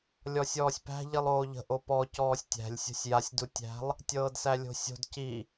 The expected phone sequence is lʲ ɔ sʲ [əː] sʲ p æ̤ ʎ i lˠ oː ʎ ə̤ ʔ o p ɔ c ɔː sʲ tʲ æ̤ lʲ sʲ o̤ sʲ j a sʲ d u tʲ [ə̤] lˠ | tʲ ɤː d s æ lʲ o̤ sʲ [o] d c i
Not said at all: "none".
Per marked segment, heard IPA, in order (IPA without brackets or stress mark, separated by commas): ɔː, æ̤, o̤